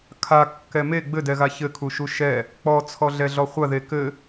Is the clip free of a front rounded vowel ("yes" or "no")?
yes